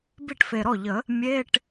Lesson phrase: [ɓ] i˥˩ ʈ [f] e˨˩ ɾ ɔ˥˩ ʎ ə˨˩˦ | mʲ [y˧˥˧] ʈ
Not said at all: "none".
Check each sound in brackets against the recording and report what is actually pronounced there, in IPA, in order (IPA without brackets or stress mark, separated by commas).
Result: b, f, e˧˥˧